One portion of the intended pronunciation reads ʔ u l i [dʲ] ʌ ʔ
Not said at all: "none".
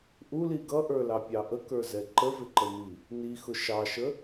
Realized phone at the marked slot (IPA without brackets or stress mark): ɡ